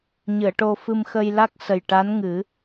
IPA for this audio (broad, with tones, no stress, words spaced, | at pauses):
ɲɨ˨˩˨ə̯ʈo˧fɨ˧m xə˧jla˦˥k̚sə˨˩j ʈa˧˥nŋɨ˨˩˦